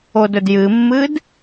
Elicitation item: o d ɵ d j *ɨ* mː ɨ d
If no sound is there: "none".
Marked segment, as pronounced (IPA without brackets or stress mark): ɨ